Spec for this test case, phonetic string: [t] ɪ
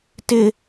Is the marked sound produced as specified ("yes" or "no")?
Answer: yes